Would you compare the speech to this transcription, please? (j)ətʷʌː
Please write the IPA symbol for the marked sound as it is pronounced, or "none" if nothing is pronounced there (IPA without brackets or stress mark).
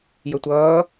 j